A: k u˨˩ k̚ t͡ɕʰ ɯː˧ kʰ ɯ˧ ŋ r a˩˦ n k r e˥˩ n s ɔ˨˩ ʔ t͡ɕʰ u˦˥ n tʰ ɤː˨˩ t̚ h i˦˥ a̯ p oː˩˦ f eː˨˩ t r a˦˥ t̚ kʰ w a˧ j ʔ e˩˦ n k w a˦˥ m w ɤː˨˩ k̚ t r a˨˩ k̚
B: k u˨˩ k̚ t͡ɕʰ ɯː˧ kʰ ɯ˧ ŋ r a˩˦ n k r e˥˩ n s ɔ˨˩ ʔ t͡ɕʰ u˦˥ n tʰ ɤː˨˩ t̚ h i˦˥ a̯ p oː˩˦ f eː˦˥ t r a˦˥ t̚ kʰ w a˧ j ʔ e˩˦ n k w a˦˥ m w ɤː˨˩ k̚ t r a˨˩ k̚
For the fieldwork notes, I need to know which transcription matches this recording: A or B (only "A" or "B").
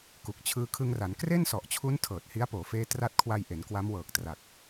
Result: B